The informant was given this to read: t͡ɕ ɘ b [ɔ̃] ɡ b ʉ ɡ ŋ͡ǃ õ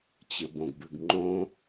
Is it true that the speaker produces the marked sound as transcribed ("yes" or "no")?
no